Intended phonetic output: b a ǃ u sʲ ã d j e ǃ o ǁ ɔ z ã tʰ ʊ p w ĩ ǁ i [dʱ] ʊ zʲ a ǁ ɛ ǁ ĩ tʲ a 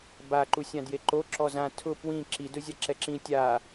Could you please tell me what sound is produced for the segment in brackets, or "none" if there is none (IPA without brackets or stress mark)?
d